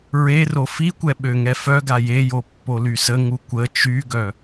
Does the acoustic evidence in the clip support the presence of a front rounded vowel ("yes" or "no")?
yes